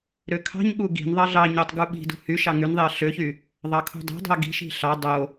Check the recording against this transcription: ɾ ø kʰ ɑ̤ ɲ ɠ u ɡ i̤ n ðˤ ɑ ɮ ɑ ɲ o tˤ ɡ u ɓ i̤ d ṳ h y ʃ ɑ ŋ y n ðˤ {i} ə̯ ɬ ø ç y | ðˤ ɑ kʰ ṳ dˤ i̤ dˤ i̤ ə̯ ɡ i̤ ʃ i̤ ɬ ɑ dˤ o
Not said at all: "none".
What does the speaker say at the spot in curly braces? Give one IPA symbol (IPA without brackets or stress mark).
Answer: i